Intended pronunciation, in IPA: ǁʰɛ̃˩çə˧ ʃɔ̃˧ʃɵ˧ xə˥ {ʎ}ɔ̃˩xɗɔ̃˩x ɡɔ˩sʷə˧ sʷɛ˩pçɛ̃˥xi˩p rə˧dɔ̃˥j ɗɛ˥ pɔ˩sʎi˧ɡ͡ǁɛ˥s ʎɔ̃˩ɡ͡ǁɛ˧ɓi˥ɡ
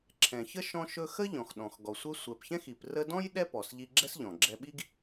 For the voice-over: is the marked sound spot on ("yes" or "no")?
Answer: yes